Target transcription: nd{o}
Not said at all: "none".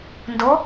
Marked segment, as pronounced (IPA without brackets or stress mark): o